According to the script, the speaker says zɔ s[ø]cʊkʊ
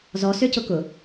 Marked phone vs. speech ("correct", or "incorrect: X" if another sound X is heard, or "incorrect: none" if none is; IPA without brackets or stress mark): correct